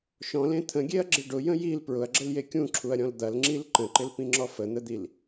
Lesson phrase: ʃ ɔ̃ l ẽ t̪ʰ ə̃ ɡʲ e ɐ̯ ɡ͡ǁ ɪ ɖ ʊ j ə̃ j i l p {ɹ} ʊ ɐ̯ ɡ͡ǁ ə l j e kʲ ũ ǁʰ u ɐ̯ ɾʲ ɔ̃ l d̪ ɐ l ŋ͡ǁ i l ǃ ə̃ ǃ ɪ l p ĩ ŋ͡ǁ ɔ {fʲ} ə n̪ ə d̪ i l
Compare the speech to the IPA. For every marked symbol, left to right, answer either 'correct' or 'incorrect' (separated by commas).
correct, incorrect